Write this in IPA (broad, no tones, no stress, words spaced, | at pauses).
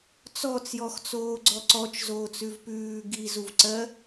t͡sɔt͡sjɔxt͡soːɡ͡ǀɔ ǀɔt͡ʃzoːt͡sʉv pʉː ɡizuvǀɜ